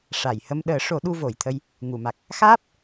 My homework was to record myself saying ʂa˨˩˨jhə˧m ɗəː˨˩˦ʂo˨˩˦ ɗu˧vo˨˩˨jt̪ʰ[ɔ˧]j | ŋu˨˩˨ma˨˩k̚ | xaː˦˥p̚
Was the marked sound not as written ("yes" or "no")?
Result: yes